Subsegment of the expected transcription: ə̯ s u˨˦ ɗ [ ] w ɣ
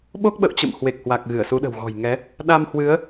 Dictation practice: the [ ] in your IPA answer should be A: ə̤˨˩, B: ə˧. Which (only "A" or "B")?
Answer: A